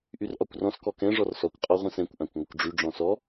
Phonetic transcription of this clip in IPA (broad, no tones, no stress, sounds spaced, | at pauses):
ʔ y r ʔ ɒ kʷ r ɔ̃ s k ɔ k ɛ̃ ʐ ɔ r s ɔ kʷ qʼ ɔ ʁʷ ɛ̃ s ɛ̃ kʷ ʔ ã kʷ ŋʷ ə kʷ ɖ͡ʐ y ɖ͡ʐ ɔ̃ s ɔ